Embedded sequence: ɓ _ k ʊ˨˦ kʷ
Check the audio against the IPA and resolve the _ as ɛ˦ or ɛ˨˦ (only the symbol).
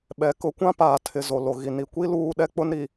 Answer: ɛ˨˦